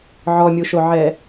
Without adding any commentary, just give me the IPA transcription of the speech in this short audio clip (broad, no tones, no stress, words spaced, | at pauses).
ʕɔmʲuʃoʕɛ